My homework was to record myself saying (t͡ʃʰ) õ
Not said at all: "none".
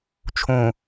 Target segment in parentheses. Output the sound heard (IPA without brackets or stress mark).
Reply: t͡ʃʰ